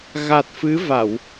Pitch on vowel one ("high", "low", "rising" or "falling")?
low